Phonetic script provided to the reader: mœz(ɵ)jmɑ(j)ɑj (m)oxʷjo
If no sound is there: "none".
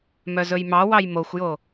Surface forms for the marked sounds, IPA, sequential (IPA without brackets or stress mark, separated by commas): ɵ, w, m